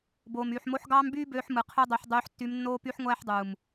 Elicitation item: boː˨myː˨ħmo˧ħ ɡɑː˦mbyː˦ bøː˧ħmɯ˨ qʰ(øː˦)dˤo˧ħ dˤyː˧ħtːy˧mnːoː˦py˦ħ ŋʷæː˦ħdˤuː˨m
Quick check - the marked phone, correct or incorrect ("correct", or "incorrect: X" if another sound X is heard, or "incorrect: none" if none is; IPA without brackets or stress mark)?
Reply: incorrect: ø˦